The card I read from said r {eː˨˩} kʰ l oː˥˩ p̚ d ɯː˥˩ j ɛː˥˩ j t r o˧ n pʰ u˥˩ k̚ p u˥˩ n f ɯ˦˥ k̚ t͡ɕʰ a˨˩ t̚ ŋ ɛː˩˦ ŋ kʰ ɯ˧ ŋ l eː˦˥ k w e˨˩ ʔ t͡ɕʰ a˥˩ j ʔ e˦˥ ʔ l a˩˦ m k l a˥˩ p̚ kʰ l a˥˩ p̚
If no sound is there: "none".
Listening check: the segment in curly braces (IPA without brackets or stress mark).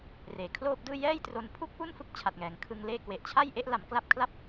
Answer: eː˨˩